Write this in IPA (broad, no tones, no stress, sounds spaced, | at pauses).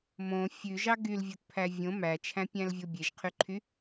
m õ fʲ ʉ ʒ ɑ ɡ y l vʲ o t pʰ æ vʲ õ m æ t͡ʃʰ æ̃ pʲ æ̃ l vʲ o bʲ e ʒ qʰ y ǃʰ y